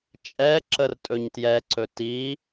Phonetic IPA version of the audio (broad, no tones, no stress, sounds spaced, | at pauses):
t͡ʃʼ ɛ ǁ ə r tʼ ɵ ɲ t j ɛ ǀ ɵ t i